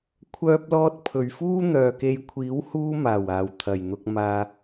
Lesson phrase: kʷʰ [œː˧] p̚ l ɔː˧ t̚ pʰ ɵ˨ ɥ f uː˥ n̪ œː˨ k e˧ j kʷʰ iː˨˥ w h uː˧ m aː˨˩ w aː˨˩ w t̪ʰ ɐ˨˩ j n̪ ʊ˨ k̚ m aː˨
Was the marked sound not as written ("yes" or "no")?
no